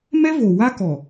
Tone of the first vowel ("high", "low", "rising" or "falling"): high